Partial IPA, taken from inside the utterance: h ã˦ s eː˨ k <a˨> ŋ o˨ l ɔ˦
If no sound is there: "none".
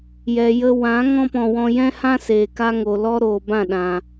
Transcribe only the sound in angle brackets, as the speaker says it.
a˦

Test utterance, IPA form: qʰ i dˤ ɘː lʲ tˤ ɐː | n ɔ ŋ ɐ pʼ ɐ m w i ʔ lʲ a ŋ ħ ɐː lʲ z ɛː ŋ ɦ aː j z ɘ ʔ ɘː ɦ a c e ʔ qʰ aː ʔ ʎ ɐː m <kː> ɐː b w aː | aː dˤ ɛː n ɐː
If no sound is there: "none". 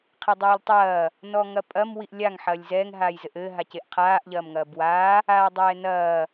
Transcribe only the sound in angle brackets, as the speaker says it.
ŋ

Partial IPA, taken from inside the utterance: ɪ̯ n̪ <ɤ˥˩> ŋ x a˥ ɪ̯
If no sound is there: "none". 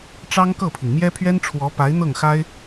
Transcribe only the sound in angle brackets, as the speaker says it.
ɤ˥˩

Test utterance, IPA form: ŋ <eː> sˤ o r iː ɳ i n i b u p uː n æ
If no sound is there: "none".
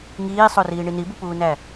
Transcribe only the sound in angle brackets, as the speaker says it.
iː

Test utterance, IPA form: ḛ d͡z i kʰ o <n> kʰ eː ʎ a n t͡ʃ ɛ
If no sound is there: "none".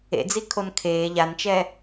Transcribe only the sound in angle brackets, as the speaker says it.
n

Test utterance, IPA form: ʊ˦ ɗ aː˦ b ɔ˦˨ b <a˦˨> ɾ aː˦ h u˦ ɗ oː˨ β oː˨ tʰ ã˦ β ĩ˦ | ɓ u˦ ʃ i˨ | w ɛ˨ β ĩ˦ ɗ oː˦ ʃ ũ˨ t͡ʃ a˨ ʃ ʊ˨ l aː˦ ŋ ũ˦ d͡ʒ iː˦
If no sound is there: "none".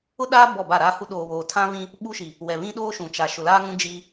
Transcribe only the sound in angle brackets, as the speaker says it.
a˦˨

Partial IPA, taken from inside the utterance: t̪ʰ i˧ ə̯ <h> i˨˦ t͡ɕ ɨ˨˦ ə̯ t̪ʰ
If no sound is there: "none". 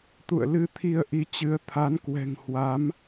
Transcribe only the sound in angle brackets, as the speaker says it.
ʔ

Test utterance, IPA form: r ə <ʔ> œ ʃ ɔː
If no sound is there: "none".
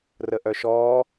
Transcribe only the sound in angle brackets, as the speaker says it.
ʔ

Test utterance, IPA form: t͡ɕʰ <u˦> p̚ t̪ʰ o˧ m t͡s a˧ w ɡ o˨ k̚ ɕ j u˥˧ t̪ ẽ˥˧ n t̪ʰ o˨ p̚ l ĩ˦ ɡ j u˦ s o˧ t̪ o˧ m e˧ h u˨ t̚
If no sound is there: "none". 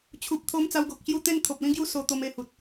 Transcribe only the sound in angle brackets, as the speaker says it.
u˨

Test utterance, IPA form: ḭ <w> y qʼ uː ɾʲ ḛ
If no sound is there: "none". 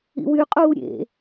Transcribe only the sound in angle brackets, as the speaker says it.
w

